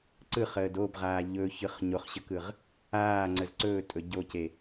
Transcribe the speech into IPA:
ǀ ɯ χ əː d o b ʁ aː ʎ ɵ ç ɯ χ ɲ o χ ɕ ə k ɯ ʁ | aː ŋ͡ǀ ə z ǀ ɵː tʼ ɵ ɟ o c e

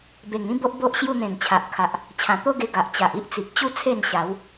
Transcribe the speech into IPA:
b e˨˩ ŋ ĩ˦ b o˦ ʔ b o˦ ʔ ɕ j u˧ n̪ ẽ˨˩ n t͡ɕʰ a˨ ʔ kʰ a˨ ʔ | t͡ɕʰ ã˨˩ t̪ o˦ ɡ e˧ ɡ a˨ ʔ t͡ɕ a˨ ʔ i˦ ʔ t͡s i˨ k̚ t͡ɕ u˦ t͡sʰ e˥˧ n ɕ a˨˦ w

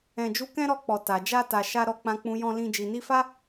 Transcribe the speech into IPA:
ɛ̃˧ d͡ʒ u˦ k ɛ̃˦ ɾ ɔ˧ k͡p ɔ˨ t a˨ d͡ʒ a˧ t a˨ ʃ a˧ ɾ ɔ˨ k͡p ã˨ k͡p ũ˨ j ɔ̃˧ l ĩ˧ d͡ʒ i˨ n i˧ f a˦

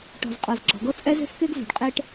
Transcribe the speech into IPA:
ʈ ɔ̤˨ z qʼ ɔ˨ z ɡ͡ǁ ɔ̤˨ ɡ ɤ˦ t͡sʼ ɛ˦ z e̤˦ f k e˦ ɡ z ṳ˨ ɖ qʼ e˦ ʈ

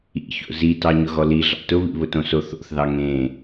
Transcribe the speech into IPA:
ḭ ç o̰ z i t ɑ ɲ ʊ ɣ ɔ l i ɮ ɑ̰ t ʊ β ḭ β ʊ t õ s o θ o̰ θ ð ɑ ŋ ẽ

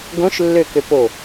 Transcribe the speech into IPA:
ɡ õ ʃ lː ø k ø p o

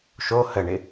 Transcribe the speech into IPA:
ʃ o h ə ɳ ɪ

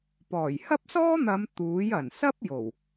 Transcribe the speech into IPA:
p ɔː˨˩ j h ɐ˥ p̚ s ɔː˥ n̪ ɐ˨˧ m t̪ uː˨˥ j ɐ˨˩ n s ɐ˥ p̚ j o˨˩ w

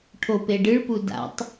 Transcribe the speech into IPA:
ʈʰ o p e ɖ ɨ ɭ p u d a̰ tˤ

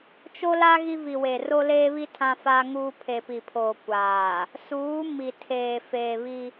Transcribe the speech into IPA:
t͡ʃ o˦ l a˦ ɣ i˦ v i˨ w e˨ r o˦ l eː˦ β i˦ tʰ ã˦ f a˦ ŋ uː˦ pʰ e˨ p i˨ pʰ oː˨ kʷ aː˨ | s uː˨˦ m i˨ tʰ eː˨ f eː˨ β i˦

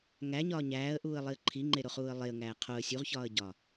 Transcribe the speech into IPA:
ŋ æ ɲ ɒː ɲ æː ə̯ ʔ uː ə̯ lˠ i ə̯ ǃʰ i ŋ͡ǃ e ɾ o χ uː ə̯ lˠ e ə̯ ŋ æː qʰ o ə̯ sʲ u ʁ ç ɒː ə̯ ɟ ɒː

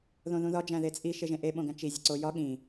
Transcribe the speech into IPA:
ð õ ð ũ ð ɒ d͡ʒ æ̃ ð e t͡sʼ i ʃ e ʒ ẽ ʔ e ɓ õ ɡ æ̃ t͡ʃ i zʲ e ǀ o j ɒ ɠ ĩ

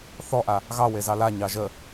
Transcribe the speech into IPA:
θ ɔ ʔ a | ɣ ɑ w e z ɑ l a ɲ ɑ ʒ ə

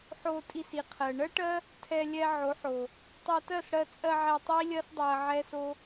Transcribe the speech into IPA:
ħ o˧ tʼ i˧ s i˨ qʰ ɜ˨ ɳ ɜ˦ ʈ ɜ˦ | tʰ ɛ˧ lʲ ɛ˧ ʕ o˨˦ ħ o˨ | tˤ ɛ˧ t ɜ˦˨ s ɽ ɜ˧ t͡sʼ ɜ˧ ʕ ɛ˧ tˤ i˦ lʲ ɜ˦ s dˤ o˧ ɐ̯ ʕ ɛ˦ s o˦

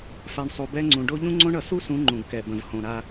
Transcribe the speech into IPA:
f a˨ ɳ sˤ u˨ b ɛ˦ ŋ͡ǀ ũ˨ ɖ o˦ ʎ ũ˦ ŋ͡ǀ õ˦ ɳ ʌ˨ s u˦ s ũ˨˦ ŋ͡ǃ ũ˨ ɡ k ɛ˨ b ə̃˨ v h õ˨ ɾ a˦

